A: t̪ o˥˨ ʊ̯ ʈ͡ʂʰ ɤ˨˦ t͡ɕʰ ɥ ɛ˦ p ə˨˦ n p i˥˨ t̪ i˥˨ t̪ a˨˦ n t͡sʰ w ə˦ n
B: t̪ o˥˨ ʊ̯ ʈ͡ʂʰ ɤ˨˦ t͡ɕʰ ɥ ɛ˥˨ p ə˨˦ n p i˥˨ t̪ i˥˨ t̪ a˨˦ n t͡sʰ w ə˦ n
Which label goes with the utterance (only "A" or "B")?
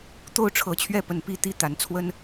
B